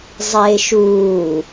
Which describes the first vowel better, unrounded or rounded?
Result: unrounded